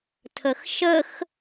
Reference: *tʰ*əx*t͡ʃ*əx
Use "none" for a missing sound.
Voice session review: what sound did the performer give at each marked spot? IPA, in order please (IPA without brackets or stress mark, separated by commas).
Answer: tʰ, ʃ